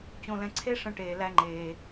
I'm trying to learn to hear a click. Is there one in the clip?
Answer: yes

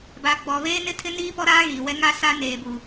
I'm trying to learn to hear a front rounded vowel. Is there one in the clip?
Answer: no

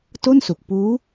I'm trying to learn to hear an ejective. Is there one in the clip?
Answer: no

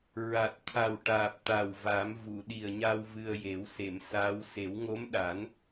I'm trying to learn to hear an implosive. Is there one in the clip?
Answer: yes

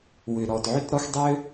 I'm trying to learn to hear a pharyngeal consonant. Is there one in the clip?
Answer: yes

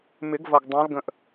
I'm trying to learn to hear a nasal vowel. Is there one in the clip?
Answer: yes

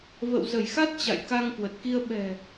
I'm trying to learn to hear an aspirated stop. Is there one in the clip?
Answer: no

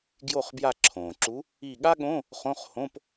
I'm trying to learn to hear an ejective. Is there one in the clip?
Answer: no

